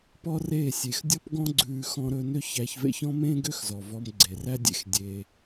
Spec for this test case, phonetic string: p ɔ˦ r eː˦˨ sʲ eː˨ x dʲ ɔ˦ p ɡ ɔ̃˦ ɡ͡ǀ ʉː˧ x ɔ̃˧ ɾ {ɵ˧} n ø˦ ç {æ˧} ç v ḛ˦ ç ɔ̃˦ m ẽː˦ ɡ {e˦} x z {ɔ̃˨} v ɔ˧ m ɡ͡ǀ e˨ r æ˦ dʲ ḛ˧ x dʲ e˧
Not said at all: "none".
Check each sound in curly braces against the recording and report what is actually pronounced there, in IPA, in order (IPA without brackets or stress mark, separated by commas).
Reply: ɵ˧, æ˧, ø˦, ɔ˨